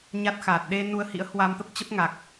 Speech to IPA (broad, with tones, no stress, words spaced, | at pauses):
ɲa˦˥t̚xaː˨˩t̚ ɗe˧ nu˧ə̯hḭ˧˥ə̯hwa˧mt̪ə˦˥p̚ t͡ɕə˦˥p̚ŋa˨˩k̚